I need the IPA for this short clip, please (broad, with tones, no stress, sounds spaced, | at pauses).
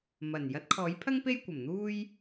m ɐ˨˩ n j ɐ˨˥ t̚ kʰ ɔː˨˥ j pʰ ɐ˥ ŋ p e˥ j kʷ ɐ˨˩ m n̪ uː˥ j